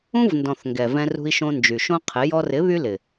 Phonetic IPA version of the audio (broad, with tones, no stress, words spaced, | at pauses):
ũ˦vndɔ̃˨θ ŋɡɛ˨vɛ̃˧rṳ˧i̯ʃõ˧ nd͡ʒy˨ʃõ˦qʰɪ˨˦ jɔ˧rɪ˨˦ βy˦lɪ˨